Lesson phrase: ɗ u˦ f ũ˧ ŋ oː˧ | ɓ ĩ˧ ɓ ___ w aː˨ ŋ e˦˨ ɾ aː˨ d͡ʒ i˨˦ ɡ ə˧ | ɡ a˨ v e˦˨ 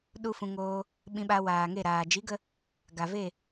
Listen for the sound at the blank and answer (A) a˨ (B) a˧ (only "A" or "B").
B